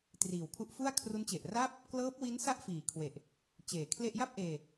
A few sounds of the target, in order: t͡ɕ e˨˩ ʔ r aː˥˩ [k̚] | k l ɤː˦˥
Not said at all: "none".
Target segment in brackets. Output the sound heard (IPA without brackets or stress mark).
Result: p̚